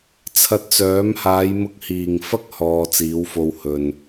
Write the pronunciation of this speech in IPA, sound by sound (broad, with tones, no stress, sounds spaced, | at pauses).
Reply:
t͡sʰ ɐ˧ t̚ t͡s œː˨˥ m h aː˨˧ j m ʊ˧ k̚ h iː˨˩ ŋ f ɐ˥ k̚ h ɔː˧ t͡s iː˨˥ w f o˧ w h ɵ˨ n